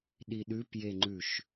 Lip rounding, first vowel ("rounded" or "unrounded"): unrounded